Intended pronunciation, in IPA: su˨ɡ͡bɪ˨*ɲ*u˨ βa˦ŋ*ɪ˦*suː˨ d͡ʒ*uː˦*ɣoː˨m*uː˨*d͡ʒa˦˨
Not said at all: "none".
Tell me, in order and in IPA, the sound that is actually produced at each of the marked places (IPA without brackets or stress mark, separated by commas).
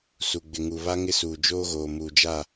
ŋ, ɪ˦, oː˦, uː˨